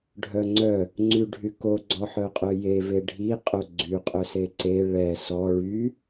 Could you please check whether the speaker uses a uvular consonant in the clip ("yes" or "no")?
yes